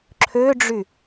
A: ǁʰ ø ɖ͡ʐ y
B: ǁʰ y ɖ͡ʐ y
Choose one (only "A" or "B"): A